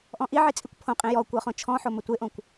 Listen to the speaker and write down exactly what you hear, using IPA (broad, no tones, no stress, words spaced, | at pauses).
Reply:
ʔɔ̃ʔiʕi t͡sʼikʷpʰõqʼĩ jɔ kʷɤχõt͡ʃʰɔ̃ħo mətʷeʔõkʷ